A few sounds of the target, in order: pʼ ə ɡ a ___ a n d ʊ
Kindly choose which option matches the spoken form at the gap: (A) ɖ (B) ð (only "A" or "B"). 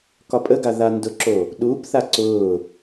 B